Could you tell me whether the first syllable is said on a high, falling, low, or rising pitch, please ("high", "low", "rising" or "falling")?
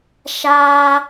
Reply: high